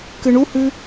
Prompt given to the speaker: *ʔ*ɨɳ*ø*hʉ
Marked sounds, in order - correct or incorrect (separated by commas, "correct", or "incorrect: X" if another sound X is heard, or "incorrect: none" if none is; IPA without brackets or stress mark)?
incorrect: k, incorrect: u